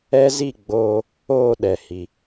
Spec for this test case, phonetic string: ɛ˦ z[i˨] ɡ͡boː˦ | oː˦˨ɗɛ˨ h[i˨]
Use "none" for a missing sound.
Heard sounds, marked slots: i˦˨, i˦

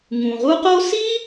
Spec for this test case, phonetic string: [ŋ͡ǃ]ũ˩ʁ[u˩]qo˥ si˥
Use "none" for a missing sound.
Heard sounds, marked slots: ŋ, u˥

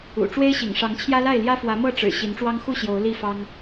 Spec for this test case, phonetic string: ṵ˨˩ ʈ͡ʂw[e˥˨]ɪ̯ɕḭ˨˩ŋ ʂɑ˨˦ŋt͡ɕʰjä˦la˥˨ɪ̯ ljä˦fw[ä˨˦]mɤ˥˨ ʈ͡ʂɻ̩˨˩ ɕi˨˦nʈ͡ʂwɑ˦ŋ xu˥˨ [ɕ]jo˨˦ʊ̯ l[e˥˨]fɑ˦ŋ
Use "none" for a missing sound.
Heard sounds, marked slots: e˦, ä˨˦, ɕ, i˥˨

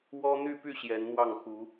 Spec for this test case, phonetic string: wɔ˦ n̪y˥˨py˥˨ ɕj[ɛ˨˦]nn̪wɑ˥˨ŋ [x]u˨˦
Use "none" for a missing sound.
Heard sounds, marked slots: ɛ˨˦, x

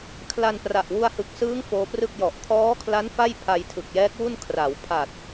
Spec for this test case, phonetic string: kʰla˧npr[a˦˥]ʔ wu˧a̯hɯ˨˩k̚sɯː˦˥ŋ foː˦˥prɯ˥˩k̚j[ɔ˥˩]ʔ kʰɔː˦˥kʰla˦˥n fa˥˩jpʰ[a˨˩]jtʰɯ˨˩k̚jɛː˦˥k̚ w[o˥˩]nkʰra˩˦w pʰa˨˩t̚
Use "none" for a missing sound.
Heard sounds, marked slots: a˨˩, ɔ˨˩, a˧, u˥˩

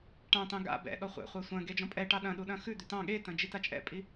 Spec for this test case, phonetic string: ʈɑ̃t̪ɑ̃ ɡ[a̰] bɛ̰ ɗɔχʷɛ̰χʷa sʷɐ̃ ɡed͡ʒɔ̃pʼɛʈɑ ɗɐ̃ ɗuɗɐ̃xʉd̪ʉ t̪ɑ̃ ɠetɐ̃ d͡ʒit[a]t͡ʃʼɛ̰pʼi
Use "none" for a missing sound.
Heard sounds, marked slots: a̰, a

